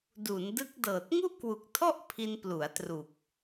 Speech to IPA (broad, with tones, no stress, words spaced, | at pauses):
du˩˦ndɯ˦˥k̚dɤː˨˩t̚ ŋu˥˩ʔkwu˨˩k̚tʰɔ˥˩ʔ pʰi˧nplu˩˦a̯tru˨˩k̚